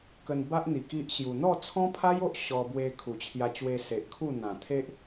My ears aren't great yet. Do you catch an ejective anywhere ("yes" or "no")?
no